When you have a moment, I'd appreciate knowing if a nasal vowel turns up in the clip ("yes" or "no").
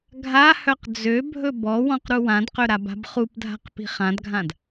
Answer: yes